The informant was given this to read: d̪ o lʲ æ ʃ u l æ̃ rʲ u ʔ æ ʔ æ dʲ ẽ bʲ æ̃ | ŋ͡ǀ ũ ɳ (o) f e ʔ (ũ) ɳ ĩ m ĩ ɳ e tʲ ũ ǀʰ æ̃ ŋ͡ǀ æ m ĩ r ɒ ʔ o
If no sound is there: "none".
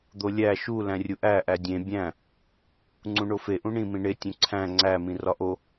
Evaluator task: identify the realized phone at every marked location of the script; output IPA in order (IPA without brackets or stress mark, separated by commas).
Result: o, ũ